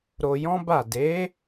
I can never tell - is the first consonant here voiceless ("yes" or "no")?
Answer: no